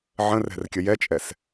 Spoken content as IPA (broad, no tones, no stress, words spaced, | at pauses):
ʕə̃rɛ̤rkʲə jɛt͡ʃʼɛs